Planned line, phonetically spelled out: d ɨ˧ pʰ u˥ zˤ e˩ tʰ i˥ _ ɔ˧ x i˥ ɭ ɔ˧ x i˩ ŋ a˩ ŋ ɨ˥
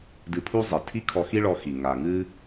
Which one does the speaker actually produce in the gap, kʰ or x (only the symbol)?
kʰ